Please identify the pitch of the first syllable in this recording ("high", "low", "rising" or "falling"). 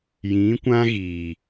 rising